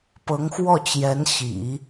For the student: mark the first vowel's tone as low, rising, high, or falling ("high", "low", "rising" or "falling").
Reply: rising